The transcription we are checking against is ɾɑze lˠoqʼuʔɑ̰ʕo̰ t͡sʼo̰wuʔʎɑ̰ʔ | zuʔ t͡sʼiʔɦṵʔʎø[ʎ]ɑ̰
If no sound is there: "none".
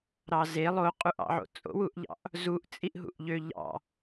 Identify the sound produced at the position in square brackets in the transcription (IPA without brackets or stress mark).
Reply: ʎ